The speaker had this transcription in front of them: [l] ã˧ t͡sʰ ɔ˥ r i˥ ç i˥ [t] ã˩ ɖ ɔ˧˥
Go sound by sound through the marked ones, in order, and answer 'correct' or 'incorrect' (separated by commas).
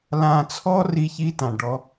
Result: correct, correct